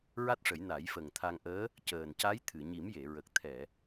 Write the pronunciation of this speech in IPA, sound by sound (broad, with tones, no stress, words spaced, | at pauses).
ɹa˦˥t̚ʂə˨˩˦j na˨˩˦jfə˨˩ŋ t̪ʰa˧ŋʔəː˧˥ | cəː˨˩nca˧˥jt̪ʰɨ˨˩˨ ɲi˨˩˦mje˨˩˨ɹə˨˩k̚ t̪ʰɛ˨˩˨